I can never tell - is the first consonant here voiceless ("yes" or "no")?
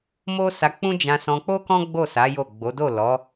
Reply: no